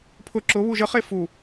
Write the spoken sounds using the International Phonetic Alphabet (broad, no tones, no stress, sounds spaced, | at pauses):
pʰ ʊ ǁ ʊ β u ʒ ə χ e f u